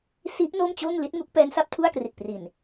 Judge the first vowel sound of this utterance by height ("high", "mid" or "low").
high